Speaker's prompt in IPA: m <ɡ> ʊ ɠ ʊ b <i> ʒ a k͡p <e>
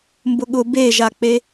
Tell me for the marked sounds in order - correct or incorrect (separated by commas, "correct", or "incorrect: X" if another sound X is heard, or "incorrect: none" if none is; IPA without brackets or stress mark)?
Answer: incorrect: b, incorrect: e, correct